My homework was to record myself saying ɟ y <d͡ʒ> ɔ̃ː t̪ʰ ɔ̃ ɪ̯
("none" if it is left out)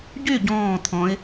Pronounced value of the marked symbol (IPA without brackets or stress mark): ɟ